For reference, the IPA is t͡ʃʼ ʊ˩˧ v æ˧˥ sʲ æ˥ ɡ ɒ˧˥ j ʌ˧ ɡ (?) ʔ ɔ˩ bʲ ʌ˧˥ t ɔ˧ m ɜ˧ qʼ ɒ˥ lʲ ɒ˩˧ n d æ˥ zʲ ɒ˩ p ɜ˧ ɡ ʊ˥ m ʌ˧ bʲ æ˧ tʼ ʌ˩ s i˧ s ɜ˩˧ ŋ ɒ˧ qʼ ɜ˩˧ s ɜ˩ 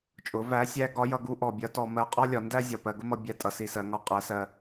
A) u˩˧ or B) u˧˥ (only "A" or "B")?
B